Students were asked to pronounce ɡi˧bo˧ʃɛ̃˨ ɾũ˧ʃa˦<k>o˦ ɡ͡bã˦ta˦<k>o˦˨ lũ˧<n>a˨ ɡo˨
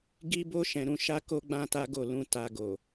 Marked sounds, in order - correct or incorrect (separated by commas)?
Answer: correct, incorrect, incorrect